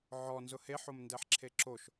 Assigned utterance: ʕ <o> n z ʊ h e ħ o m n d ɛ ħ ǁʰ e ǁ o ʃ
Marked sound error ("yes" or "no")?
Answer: yes